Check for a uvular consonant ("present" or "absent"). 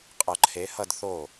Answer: present